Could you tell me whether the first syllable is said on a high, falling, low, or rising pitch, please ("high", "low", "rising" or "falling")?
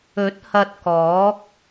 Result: rising